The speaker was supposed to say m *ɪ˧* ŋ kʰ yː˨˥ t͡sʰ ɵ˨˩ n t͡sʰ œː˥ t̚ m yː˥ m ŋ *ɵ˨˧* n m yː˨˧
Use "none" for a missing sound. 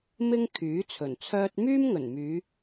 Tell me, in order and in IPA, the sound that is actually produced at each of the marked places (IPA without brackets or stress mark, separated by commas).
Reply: ɪ˥, ɵ˨˩